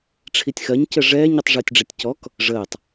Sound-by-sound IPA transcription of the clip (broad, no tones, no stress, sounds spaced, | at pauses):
ʈ͡ʂʰ i tʲ x ɜ ɲ c ə ʐ ɛː ɲ i tˤ ʐ əː tʲ ɖ͡ʐ ɛ tʲ c ɔ k | ʐ əː tˤ